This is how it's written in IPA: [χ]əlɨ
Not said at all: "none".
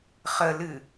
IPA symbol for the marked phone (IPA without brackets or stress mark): χ